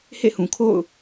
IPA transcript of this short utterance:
h ḛ˦˨ h ũ˨ kʰ o̰˦˨ ʊ̯

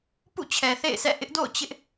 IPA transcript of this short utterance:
p ṵ˦˨ t͡ɕʰ ɛ˨ θ ḛ˦˨ ɪ̯ s ɛ̰˦˨ ʔ ɪ˦ ʔ d o̰˦˨ ʊ̯ t͡ɕ ɪ˦ ʔ

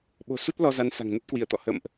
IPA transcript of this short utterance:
ɓ o̤˨˩ s u˦˥ t̚ l ɔ˧ z a˨˦ n s a̤˨˩ ŋ n ə˦˥ t̚ k w i˧˩ ə̯ t̪ ɔ̰˧˨ h ə̰˧˨ m ʔ

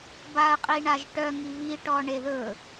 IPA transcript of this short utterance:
b a ə̯ qʼ i ɳ a ʒ ʈ œ ŋ i β i ʈ ɔ ɳ e ð ɵ

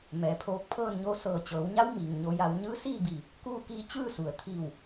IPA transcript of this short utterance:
m ɛː˩˧ pʰ oː˧ k̚ pʰ ɤː˥˨ n ɲ o˧ s ɤː˧˩ t͡ɕ ɤː˩˧ w ɲ a˧˥ w m iː˩ ŋ ɲ o˧ j a˧ w ɲ ɯː˧˥ s iː˥˨ b iː˧˩ | k uː˥˨ k iː˧˥ t͡ɕ ɯː˥˨ s u˩ ə̯ t̪ʰ iː˧˩ w

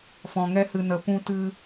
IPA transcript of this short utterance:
f ɔ̃˨ ŋ ɛ˦ h ɨ˨ n ə˨˦ p ũ˦ t ɨ˦

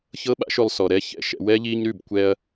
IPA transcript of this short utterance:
ç ɤ˦ ɓ a̰˦ ʃ ʉ˧ lˠ s ɔ˨ ɾ ɛ˦ ç ɛ̰˦ ʃ ɛ̰˦ w ɛ˦ ʎ i˧ ɲ ɾ ʉ˦˨ b kʷ ɛ˧ ɐ̯

